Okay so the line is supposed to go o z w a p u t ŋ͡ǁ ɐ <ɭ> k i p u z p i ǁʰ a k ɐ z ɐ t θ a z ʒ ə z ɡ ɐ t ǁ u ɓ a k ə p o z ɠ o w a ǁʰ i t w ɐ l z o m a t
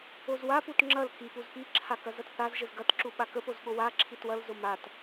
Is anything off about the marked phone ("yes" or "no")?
yes